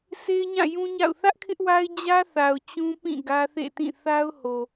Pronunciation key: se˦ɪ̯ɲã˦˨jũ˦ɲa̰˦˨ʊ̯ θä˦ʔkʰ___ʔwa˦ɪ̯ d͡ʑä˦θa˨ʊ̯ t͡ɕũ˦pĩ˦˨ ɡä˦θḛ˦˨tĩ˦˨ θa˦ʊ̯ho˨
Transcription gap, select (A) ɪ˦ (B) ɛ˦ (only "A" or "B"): A